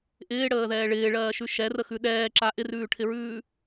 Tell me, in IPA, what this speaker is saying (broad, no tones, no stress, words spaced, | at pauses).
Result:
ʔɪːɽəːðɛː ɭɪːɭɜːʃʉ ʃɛrəxʉ ɗɛːǁa ʔɪrʉːʈʰɪɹʉː